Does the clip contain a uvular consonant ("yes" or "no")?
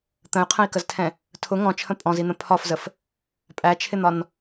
yes